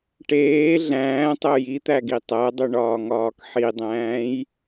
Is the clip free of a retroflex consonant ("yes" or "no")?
no